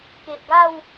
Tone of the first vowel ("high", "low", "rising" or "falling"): low